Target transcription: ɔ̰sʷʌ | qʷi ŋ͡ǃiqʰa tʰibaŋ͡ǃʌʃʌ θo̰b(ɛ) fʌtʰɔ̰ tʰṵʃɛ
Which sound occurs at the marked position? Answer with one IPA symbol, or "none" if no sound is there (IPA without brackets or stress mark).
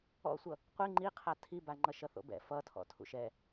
ɛ̰